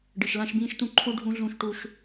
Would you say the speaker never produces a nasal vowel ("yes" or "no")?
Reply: no